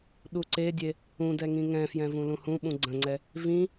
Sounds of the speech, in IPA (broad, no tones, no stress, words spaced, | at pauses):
ɗuǀedʲe | ũdɛ ŋĩŋɛ̃fjɛ̃ vũlũhũɓũ ɡ͡ǀə̃ŋ͡ǀɛ | vĩ